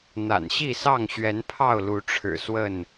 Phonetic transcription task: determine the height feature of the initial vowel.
low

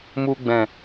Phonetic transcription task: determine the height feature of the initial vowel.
high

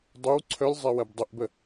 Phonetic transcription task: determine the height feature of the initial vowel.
mid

